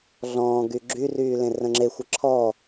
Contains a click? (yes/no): yes